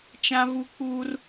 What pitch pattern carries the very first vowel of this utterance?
high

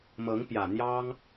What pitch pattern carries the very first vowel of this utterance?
rising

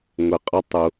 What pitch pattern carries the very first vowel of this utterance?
low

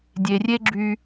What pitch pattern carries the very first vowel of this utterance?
low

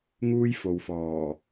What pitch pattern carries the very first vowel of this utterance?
high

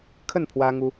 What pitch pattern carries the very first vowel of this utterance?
falling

